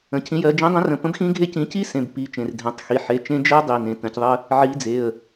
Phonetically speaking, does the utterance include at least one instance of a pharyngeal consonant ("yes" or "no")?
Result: yes